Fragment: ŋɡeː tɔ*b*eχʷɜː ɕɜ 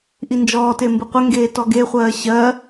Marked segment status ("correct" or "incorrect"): incorrect